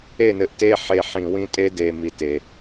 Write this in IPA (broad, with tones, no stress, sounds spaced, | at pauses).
e˦˨ n ɘ˨ ʔ t e˦ ħ e˨ ħ ĩ˨ w ĩ˦ tʼ e˦ d e˨ m i˦ t e˨